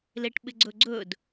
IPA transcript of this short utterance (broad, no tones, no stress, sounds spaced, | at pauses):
l e ʈ ɓ ɪ ɡ͡ǀ ɵ ɡ͡ǀ ɵ d